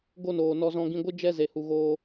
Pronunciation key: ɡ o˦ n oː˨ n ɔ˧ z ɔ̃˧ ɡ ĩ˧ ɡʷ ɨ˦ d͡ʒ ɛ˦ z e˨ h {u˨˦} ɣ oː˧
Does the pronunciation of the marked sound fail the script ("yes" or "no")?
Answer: yes